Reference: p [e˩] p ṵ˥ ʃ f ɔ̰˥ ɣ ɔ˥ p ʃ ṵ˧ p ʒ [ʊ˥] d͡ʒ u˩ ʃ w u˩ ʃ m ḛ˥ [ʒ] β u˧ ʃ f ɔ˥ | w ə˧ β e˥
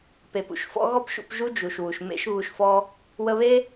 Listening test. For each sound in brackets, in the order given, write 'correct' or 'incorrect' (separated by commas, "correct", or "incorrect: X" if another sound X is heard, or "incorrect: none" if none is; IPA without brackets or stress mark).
correct, incorrect: u˥, incorrect: ʃ